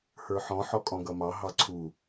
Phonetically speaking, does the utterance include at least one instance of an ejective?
yes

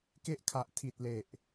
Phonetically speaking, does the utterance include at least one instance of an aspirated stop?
yes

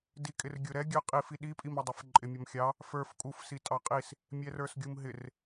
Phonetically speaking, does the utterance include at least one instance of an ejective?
yes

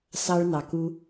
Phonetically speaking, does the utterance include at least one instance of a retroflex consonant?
yes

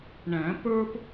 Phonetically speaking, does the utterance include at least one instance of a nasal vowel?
yes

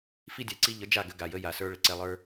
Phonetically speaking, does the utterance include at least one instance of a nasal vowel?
no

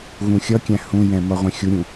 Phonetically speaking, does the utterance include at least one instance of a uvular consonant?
yes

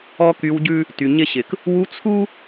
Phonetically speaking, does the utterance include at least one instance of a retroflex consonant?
no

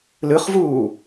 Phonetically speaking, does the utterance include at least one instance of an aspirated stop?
no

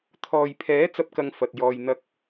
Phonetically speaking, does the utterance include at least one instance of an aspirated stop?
yes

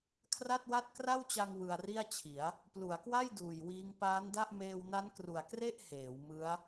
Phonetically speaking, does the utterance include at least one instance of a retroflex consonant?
no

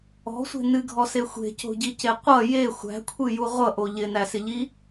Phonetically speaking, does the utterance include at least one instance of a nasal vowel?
no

